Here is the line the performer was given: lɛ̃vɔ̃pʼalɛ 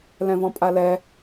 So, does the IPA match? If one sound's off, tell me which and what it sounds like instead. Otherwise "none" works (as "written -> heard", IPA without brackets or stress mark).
none